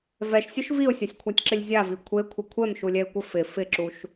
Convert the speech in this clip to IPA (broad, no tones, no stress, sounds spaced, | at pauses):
v ɛ ʃ sʲ ʊ ʃ v i ʊ̯ sʲ a sʲ kʷʰ a tʲ ǁ ɪ lʲ zʲ a v i kʷʰ e kʷʰ ɪ kʷʰ ɛ m ʃ u lʲ ɛ ɪ̯ kʷ ɪ f ɪ f ɪ ǁ u ʃ